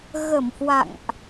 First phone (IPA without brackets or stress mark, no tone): ɣ